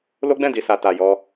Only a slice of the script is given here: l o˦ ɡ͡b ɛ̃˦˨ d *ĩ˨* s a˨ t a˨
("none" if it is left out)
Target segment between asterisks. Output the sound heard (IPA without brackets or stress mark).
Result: i˨